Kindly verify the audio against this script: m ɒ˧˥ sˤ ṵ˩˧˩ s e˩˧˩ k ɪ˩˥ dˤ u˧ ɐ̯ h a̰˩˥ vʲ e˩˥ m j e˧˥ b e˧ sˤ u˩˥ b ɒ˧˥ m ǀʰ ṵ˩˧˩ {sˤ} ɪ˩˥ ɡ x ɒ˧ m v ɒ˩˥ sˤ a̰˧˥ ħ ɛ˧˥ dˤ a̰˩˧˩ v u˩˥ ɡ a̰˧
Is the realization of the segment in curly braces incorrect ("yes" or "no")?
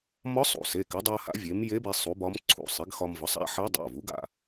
no